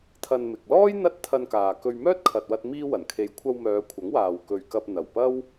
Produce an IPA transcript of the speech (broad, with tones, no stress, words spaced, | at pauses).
t̪ʰɐ˧nmɪ˨k̚ lɔː˥j n̪ɐ˥t̚ t̪ʰɐ˧nkaː˨kɵ˧ɥ mœː˥t̚kʰɐ˨t̚wɐ˧t̚ miː˥wɐ˨˩n kʰe˨jkʷʰɐ˧wmœː˨˧ kʷʰɐ˨˥ŋwaː˨wkɵ˨ɥkɐ˧p̚ n̪ɐ˨˩wpɐ˥w